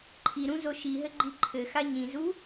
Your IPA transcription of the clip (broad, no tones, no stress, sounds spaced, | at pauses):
ǃʰ i ɾ ũ z o ʃ i ɦ ɘ ɡ͡ǃ i ǃʰ ɘ x a ɲ ĩ z u